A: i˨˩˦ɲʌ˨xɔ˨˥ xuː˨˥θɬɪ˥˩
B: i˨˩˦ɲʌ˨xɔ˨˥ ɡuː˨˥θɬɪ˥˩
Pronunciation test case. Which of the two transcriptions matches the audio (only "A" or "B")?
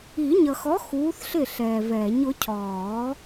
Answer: A